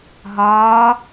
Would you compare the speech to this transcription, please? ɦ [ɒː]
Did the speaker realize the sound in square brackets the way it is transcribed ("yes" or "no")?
yes